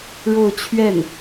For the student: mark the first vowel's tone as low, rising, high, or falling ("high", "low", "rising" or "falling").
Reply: falling